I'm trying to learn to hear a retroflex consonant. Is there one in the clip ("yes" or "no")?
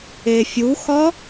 no